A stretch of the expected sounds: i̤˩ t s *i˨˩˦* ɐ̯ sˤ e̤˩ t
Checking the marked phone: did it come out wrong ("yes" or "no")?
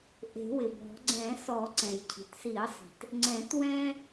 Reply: no